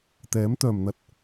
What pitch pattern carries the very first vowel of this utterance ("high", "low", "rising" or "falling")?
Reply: rising